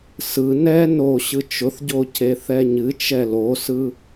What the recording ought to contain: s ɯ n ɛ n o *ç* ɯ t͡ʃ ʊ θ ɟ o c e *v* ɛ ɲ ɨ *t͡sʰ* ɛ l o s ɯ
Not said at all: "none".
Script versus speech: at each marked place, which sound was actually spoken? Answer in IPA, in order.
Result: ɕ, θ, t͡ʃ

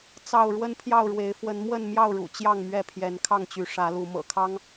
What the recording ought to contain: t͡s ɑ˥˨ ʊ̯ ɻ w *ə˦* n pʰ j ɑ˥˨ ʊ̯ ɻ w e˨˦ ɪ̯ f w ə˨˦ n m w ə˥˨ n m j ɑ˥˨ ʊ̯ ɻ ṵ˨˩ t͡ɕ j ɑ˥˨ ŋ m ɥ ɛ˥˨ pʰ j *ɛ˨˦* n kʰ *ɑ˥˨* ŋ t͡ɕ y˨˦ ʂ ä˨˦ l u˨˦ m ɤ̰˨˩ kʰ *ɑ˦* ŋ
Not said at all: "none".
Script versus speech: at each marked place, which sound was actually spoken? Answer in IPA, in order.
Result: ə˦, ɛ˨˦, ɑ˥˨, ɑ˦

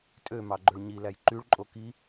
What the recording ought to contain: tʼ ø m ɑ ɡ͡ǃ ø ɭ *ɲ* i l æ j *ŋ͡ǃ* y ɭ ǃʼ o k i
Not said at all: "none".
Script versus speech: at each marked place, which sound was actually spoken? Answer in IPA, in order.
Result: ɲ, ǃ

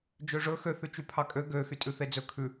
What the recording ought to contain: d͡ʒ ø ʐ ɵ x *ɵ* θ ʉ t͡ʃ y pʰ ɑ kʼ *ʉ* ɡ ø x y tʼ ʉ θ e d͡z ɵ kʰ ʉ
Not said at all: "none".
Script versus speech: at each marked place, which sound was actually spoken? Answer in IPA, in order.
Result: ø, ø

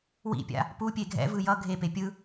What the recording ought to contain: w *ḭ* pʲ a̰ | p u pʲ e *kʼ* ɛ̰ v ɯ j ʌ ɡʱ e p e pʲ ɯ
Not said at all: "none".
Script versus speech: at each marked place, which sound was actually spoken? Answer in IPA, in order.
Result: ḭ, ɡʱ

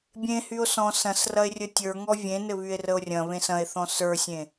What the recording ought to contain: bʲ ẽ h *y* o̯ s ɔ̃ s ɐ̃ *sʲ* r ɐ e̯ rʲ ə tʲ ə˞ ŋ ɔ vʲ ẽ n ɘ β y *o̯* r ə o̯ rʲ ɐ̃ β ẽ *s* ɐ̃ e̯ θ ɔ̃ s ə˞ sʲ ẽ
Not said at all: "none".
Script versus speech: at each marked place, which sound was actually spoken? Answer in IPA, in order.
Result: y, s, e̯, s

